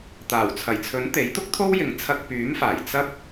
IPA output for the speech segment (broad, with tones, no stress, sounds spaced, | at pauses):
t̪ aː˨˩ w t͡sʰ ɐ˨˩ j t͡sʰ ɵ˨˥ n t̪ e˨˥ j t̪ ʊ˥ k̚ t̪ʰ o˥ w j ɪ˨˧ ŋ t͡sʰ ɐ˧ k̚ p yː˨˥ m f aː˨˩ j t͡s ɐ˥ p̚